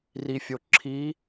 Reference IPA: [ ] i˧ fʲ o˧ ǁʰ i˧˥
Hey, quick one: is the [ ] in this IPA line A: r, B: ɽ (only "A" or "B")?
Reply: A